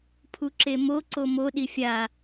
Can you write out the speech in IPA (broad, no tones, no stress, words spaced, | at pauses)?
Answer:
pʰuǁemo ǀomo ɗifʲa